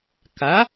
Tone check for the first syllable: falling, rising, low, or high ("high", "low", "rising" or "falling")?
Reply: rising